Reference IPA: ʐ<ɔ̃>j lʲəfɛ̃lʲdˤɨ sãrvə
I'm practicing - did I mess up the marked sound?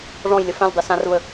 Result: no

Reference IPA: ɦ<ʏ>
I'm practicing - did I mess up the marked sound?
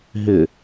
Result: no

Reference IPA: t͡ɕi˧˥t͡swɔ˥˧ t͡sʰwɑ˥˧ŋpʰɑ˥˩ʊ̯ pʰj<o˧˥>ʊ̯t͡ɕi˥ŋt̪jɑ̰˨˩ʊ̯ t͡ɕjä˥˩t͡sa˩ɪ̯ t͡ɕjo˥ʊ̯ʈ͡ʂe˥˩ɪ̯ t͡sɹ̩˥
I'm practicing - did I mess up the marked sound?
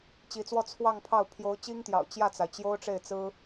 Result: no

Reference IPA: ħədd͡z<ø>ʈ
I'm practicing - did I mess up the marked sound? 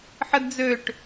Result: no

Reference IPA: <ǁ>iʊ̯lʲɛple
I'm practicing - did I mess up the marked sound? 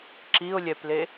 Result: no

